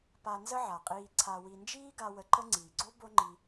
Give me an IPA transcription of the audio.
p a˧ n z ə˥ ʕ a˩ qʼ iː˧ ǀʰ a˧ w i˧ n d͡ʒ iː˥ ɡ a˧ w ə˧ ǃ ə˥ ŋ͡ǀ iː˩ ɡ͡ǀ o˥ b o˥ ŋ͡ǃ i˧

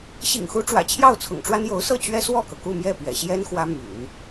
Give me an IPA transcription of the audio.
ɕ ḭ˨˩ ŋ x u˧˥ ʈ͡ʂ w ä̰˨˩ t͡ɕʰ j ɑ˥˩ ʊ̯ t͡sʰ ʊ̰˨˩ ŋ ʈ͡ʂ w a˥ n j o˧˥ ʊ̯ s ɤ˥˩ t͡ɕ ɥ ɛ˥ s w ɔ˥˩ k ɤ˩ k u˥˧ m j ɛ˥˩ p ɥ ɛ̰˨˩ ɕ j ɛ˥ n x w ä˥ m y̰˨˩˦ n

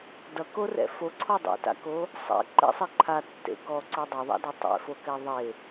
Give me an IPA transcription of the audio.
d ʌ k o r ɛ̰ f o ǀʰ ɔ dˤ ḛ t a̰ k o | sˤ ɛ̰ ǃ ɛ̰ sˤ e ǃʰ a tː ḛ k ɔ ǀ o dˤ o ðˤ a̰ d ɔ tˤ ɛ̰ f o k ɛ ðˤ e

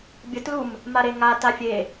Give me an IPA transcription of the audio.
bʲ ə t l u m | m a ɾ e ŋ a t a fʲ e

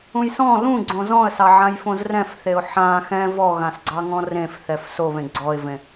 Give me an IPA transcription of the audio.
ũ j s ɔ̃ l ũ ɡ͡ǀ õ z ɔ̃ ə̯ s ɑ ʕ ã j f õ z r ɛ̃ f θ e ʊ̯ ħ ã x ɛ̃ v ɔ ɣ ã s ɡ͡ǀ ɑ ŋ ɔ̃ r ẽ f θ ɛ f s o β ẽ ɡ͡ǀ ɔ ɪ̯ v ẽ

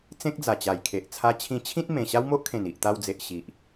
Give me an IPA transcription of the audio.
t͡s ẽ˦ k̚ d͡z a˨˩ t͡ɕ a˨˩ j kʰ e˨ ʔ t͡sʰ a˧ t͡ɕʰ ĩ˧ t͡ɕʰ ĩ˦ t̚ m ẽ˨˩ ɕ a˦ w m o˦ ʔ kʰ ẽ˨˩ n i˨ ʔ t̪ a˧ w d͡z e˨ ʔ ɕ i˨ ʔ

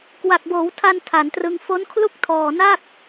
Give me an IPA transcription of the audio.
k w a˨˩ k̚ b oː˩˦ w tʰ a˧ n tʰ a˩˦ n t r ɯ˧ ŋ f o˦˥ n kʰ l u˥˩ k̚ tʰ ɔː˨˩ n a˥˩ k̚

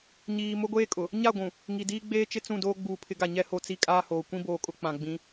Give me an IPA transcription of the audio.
ɲ iː˨ m ʊ˦ ɡʷ eː˦ kʼ ʊ˨ | ɲ a˦˨ ɡʷ ũ˨ | ŋ i˨ d iː˦ ɡ͡b eː˦ t͡ʃ ɪ˦ t͡s ũ˦˨ d oː˦ ɡ͡b uː˨ pʰ ɪ˨˦ ɡ a˨ ɲ ɛ˦ h o˦˨ t͡s i˦ kʼ aː˦ h oː˨ kʷ ĩ˦ b oː˨ kʼ ʊ˦ k͡p ã˨ ɡ͡b ĩ˨˦

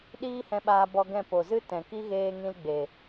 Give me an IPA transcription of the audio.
ɗ iː˦ h ɛ̃˧ ɓ aː˧ b ɔ˧ ɡ ɛ̃˦˨ p o˨ z ɨ˦ t ɛ̃˨ k i˦ ɣ eː˧ ŋ ĩ˧ l ɡ͡b e˨

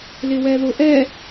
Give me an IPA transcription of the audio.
l ɪ w ɛ ð ʊ ʔ ɛ

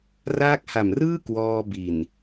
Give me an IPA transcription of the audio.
r aː˦˥ k̚ h a˨˩ m r ɯː˥˩ k w ɔː˧ b i˨˩ n

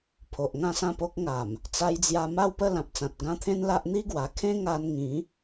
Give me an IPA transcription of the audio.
pʰ o˨ ʔ ŋ ã˥˧ s ã˥˧ p o˦ k̚ ŋ a˨˩ m | t͡s a˧ j d͡z j a˧ m a˥˧ w p ə˥˧ l ã˨ p̚ t͡s ã˨ t̚ ɡ ã˥˧ t̪ʰ ẽ˦ n l a˦ ʔ n̪ i˦ ɡ w a˨˩ kʰ ẽ˦ ŋ a˧ n ŋ ĩ˨˦

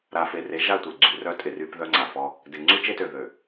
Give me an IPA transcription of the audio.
ɾ a˨ f e˨ r e˨˦ ʒ a˦˨ tʷ e˨ ɡ͡ǀ y˨ r œ˦ tʼ ɪ˨ r y˦ p ð œ˦ ŋ͡ǀ a˨ f ɔ˦ | d ɪ˨ ŋ͡ǀ y˦ t͡ʃ e˦ t ø˨ ð ø˨

